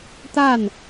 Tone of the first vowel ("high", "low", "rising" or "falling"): falling